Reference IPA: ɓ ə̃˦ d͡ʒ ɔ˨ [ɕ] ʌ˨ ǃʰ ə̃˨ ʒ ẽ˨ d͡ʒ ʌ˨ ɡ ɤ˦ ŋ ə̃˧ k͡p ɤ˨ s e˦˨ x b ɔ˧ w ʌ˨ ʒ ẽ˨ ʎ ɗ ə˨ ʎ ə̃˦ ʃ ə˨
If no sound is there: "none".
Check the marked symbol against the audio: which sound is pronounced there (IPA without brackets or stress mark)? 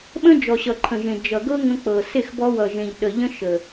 ɕ